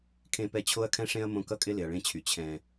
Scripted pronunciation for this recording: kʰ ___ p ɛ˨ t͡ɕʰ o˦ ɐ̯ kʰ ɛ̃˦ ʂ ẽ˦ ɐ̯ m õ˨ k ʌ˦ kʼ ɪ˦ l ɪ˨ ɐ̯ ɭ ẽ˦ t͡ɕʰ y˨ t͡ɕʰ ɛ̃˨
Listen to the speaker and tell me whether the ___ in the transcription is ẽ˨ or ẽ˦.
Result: ẽ˨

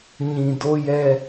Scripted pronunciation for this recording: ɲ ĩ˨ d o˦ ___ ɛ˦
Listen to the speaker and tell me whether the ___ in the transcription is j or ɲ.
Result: j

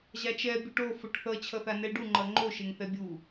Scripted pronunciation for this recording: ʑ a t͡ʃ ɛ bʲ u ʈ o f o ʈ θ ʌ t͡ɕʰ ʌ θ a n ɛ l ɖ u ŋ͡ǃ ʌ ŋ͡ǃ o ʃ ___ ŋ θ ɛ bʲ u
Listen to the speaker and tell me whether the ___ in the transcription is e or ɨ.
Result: e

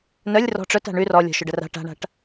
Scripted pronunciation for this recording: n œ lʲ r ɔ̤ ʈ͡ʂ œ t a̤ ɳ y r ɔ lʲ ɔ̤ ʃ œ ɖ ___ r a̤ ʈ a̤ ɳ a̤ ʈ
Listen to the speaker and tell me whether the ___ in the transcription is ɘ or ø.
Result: ɘ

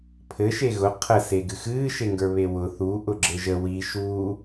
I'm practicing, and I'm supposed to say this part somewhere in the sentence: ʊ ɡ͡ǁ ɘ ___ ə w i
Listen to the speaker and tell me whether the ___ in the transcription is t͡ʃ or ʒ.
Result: ʒ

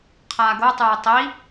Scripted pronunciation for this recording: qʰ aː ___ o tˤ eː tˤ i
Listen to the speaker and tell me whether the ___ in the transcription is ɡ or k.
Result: ɡ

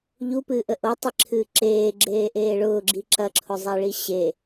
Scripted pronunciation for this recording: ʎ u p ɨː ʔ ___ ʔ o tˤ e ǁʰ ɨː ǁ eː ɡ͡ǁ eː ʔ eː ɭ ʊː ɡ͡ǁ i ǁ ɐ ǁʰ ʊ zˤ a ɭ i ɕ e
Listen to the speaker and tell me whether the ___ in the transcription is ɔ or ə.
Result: ə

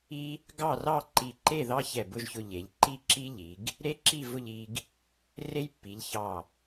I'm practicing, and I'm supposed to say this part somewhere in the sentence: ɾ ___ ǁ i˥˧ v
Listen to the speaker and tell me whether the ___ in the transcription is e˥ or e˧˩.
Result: e˥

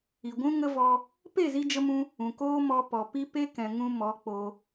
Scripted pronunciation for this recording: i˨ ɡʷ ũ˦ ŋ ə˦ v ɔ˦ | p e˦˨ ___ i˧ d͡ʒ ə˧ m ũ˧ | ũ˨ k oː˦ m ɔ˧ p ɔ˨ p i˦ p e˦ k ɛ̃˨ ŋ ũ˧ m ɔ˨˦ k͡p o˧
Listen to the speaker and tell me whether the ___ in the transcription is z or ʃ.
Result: z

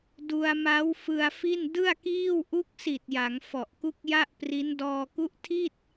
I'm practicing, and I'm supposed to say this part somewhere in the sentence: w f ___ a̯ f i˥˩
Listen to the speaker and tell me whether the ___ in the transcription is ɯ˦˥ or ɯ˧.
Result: ɯ˧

